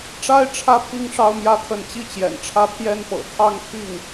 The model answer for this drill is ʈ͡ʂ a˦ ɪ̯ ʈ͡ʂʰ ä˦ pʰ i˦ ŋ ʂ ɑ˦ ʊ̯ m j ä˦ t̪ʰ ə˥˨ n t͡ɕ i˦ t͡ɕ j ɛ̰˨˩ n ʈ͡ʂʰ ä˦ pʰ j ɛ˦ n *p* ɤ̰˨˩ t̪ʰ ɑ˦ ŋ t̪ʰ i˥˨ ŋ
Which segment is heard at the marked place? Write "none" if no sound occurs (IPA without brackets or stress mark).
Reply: p